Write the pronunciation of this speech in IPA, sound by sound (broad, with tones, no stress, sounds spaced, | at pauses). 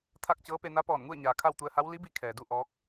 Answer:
t̪ʰ a˥˨ k̚ t͡ɕ ɤː˧˥ p e˧ n a˧˥ p ɔː˧˩ n ŋ u˥˨ ə̯ ɲ aː˩ kʰ a˥˨ w t̪ u˧ ə̯ h a˧˥ w l i˧˥ b i˧ kʰ ɛː˩ d u˥˨ ʔ ɔː˧˥ k̚